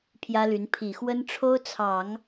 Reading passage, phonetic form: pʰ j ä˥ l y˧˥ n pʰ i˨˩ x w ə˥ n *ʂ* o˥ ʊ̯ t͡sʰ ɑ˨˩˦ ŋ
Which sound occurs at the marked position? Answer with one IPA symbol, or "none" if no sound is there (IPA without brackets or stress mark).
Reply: ʈ͡ʂʰ